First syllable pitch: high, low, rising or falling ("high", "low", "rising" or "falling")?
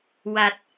low